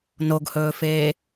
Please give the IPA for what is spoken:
n o ɡ h ɵː f eː

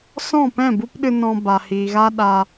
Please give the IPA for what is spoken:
s ɔ̃˦˨ p ɛ̃˦˨ b u˦ p ɗ ɨ˧ n ɔ̃˧ b a˨ h iː˨ ɣ a˦ ɗ a˧

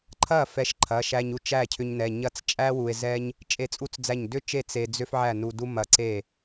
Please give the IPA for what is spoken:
ǃʰ ɐ˥˩ f ɛ˧ ʃ ǃʰ ɐ˩˧˩ ʃ æ˧ ɲ u˥˩ t͡ʃ æ˥˩ cʰ ʏ˧ ɲ n ɛ˩˧˩ ɲ ɐ˥˩ t͡s t͡ʃʼ æ˥ w u˧ e̯ z ɛ˥ ɲ | t͡ʃʼ e˥˩ t͡sʼ u˥ t͡s d͡z æ˥˩ ɲ d ʏ˥ t͡ʃ e˥˩ t͡s e˧ d͡z ʏ˥ f ʕ æ˥˩ n u˧ d u˥ m ɐ˧ ǀ e˥˩

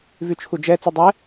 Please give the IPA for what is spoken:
v y t͡ʃʰ u d͡ʒ ɛ t͡s u dˤ ɛ

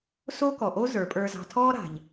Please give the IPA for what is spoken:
s oː˥ k ɔ˩ ʔ o˥ z ə˞˩˧ pʼ ə˞˧ z ɑ̤˧ tʰ ɔː˥ ɾ a̤˩ ʎ

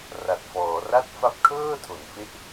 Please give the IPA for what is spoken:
r a˨˩ t̚ f ɔː˩˦ r a˥˩ t̚ f a˦˥ p̚ kʰ ɤː˥˩ tʰ o˩˦ n f e˥˩ ʔ

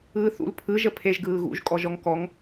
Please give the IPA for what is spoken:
ɯː θ ṵ l pʰ ɯ ʒ ə pʰ e ʒ ɡ ɯː ɣ ṵ ʒ kʼ ɔ ʒ ɔ ŋ k ɔ ŋ

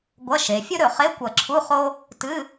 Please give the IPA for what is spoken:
ɡʷ ɐ˧˥˧ ʃ e˩˧ fʲ ɵ˥ ɾ ɵ˧˩ χ e˧˥˧ kʷ ɐ˧˩ ǁʰ u˧˥˧ χ o˥ | t ɨ˧˥˧

